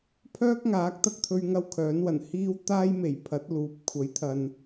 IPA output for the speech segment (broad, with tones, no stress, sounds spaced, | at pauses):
pʰ œː˥ k̚ ŋ aː˨˥ k̚ t̪ ɐ˧ k̚ t̪ʰ ɵ˧ ɥ ŋ ɐ˥ w kʰ œː˨˥ n w ɐ˨˩ n h iː˥ w t̪ aː˥ j m e˨˩ j pʰ ɐ˨˥ t̚ l uː˨˥ p̚ kʷʰ ɐ˨˥ j t̪ʰ ɐ˨ n